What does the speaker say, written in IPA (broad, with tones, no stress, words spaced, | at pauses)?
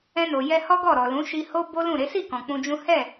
ɛ̃˧no˨ jɛ˧hɔ˦ ɡɔ˦˨ɾɔ˨lũ˨˦ ʃi˧ho˦ bo˦lũ˦˨ɾe˨˦ si˦˨kɔ̃˨ k͡pũ˧d͡ʒũ˦ hɛ˦˨